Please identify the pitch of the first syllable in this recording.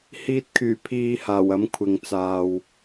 low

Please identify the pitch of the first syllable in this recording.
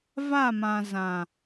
falling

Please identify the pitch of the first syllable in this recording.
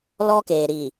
high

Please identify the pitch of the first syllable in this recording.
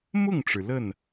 falling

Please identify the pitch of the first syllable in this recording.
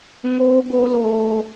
high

